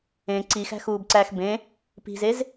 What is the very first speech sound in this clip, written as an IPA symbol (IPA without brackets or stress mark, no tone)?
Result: ẽ